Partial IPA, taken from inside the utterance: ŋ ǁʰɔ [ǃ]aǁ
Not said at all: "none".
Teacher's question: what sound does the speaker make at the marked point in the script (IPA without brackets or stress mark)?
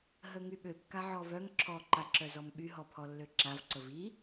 ǃ